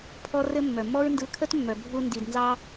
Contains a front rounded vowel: yes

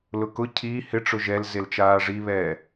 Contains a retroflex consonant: yes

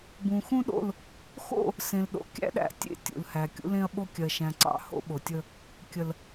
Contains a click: yes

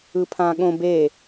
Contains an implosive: yes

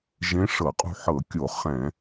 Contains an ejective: yes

